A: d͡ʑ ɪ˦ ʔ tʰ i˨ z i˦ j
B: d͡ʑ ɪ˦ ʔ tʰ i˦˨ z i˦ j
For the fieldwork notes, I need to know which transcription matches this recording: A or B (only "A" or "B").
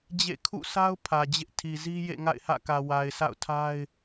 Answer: A